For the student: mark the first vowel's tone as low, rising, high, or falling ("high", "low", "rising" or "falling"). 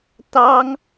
high